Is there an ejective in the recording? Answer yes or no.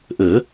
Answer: no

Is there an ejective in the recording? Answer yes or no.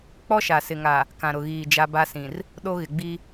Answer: no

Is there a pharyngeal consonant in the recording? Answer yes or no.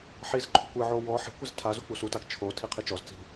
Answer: yes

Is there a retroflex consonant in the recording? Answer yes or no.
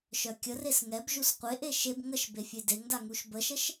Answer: no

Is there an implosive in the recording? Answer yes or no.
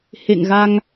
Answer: no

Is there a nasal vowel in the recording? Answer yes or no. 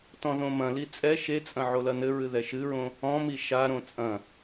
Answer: yes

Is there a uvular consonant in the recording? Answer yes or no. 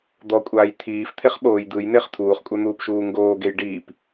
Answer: yes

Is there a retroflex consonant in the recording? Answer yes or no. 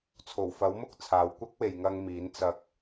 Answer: no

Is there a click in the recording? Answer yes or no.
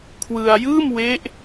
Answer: no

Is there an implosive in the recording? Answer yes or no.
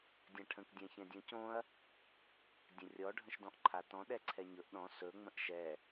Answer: yes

